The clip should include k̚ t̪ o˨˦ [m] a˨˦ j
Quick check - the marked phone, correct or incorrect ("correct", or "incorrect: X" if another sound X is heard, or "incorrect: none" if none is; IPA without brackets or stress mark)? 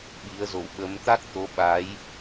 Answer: incorrect: ɓ